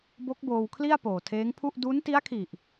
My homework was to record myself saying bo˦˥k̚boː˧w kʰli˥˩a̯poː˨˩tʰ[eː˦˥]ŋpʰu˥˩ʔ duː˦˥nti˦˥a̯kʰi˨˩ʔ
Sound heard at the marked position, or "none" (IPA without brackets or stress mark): eː˦˥